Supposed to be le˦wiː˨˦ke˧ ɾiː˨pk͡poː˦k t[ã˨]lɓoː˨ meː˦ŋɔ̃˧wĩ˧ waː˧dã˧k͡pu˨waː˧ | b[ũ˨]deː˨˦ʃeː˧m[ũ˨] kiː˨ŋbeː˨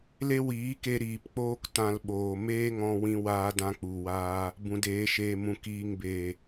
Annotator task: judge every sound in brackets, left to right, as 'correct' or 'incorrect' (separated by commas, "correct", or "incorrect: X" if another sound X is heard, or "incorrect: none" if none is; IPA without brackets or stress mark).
incorrect: ã˧, correct, correct